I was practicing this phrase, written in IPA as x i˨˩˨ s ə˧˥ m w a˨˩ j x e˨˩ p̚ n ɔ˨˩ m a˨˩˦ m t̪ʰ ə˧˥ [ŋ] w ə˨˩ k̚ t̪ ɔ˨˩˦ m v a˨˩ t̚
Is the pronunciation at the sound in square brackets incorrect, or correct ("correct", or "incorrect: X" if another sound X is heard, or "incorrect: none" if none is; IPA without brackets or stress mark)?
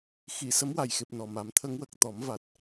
correct